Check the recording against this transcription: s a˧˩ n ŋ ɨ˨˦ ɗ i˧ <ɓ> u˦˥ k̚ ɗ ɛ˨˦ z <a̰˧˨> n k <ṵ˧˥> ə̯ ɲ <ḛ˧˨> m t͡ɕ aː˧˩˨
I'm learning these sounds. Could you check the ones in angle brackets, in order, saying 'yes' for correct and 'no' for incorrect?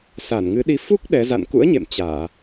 no, yes, yes, yes

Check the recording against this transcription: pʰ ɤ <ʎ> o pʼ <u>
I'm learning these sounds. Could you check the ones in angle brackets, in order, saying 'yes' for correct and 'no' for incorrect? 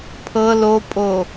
no, no

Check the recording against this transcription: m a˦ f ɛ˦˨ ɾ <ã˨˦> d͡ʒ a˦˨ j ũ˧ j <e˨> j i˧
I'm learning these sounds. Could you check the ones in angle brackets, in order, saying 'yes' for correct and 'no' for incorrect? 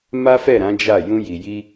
yes, no

